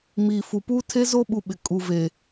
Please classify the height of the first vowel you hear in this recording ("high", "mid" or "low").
high